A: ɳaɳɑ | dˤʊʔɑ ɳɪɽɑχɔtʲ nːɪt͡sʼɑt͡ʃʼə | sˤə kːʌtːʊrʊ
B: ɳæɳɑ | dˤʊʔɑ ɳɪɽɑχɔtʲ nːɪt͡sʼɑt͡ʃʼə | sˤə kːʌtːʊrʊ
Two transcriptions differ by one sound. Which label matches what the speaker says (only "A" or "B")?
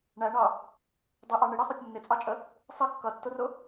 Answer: B